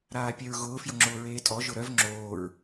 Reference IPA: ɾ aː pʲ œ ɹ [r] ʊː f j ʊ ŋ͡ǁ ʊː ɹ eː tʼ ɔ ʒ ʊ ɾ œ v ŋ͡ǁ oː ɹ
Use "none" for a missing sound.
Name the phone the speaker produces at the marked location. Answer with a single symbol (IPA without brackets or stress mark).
ɣ